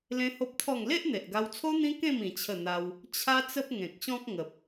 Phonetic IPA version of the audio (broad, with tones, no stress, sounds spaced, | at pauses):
l ẽ˦ h o˦ p̚ t̪ʰ ɔ˥˧ ŋ l e˦ ʔ n̪ e˨ ʔ ɡ a˧ w t͡sʰ o˦ n̪ ĩ˦ k ẽ˥˧ m ĩ˧ t͡ɕʰ ə˥˧ n̪ a˦ w | t͡ɕʰ a˦ t͡s ə˦ p̚ ŋ ẽ˨ k̚ ɕ ɔ̃˦ k̚ ŋ ə˨ p̚